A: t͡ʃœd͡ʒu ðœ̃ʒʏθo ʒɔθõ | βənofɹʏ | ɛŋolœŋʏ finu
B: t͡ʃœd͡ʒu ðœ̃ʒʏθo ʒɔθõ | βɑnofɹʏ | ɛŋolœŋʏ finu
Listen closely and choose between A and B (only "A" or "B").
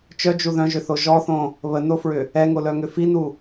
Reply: A